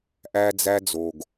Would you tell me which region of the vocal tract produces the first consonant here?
throat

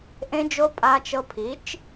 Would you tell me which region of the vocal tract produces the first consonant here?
throat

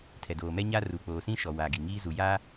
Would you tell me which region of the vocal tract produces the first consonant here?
tongue tip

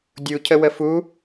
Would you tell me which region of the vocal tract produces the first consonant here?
tongue tip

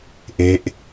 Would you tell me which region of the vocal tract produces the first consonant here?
throat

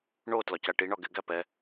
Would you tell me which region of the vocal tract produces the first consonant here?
retroflex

